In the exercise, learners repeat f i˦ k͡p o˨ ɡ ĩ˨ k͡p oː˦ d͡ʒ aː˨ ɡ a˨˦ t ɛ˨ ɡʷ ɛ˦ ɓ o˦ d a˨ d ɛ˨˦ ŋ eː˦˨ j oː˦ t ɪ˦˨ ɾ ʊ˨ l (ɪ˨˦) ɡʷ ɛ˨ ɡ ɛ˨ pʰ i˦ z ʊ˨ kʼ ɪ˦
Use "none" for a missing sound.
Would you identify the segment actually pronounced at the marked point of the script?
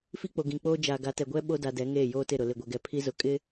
ɪ˨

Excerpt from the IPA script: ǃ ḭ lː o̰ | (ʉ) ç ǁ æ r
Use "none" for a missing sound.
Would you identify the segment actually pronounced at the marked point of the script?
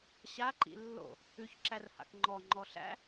ʉ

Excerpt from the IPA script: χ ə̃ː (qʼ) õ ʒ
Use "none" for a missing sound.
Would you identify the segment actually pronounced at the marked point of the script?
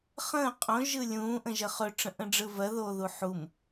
qʼ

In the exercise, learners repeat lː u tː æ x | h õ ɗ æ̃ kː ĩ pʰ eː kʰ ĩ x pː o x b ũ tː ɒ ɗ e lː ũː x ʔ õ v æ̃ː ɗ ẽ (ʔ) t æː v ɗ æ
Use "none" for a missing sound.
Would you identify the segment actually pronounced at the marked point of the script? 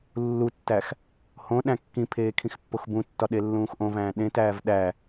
none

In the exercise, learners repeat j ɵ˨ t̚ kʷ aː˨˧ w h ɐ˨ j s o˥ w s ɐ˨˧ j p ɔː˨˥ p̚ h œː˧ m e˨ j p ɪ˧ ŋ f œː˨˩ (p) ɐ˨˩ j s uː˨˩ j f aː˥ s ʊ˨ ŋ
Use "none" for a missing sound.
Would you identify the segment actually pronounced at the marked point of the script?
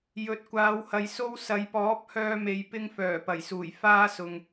p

